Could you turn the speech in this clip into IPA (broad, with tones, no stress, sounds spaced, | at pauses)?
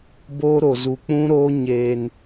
b oː˦ ɾ o˨ z u˨ k͡p ũ˦ ɾ oː˦ ɲ eː˦ n